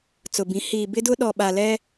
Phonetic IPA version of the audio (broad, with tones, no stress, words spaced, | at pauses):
t͡sʊ˨bĩ˨˦ hiː˨bɪ˦dʊ˦ ɗɔ˨ɓa˨lɛ˦